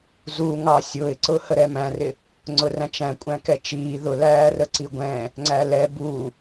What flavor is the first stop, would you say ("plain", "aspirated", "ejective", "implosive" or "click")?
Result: click